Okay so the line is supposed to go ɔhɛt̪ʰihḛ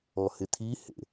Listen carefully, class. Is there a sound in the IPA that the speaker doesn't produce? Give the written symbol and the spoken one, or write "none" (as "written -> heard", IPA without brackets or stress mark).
ɛ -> ɪ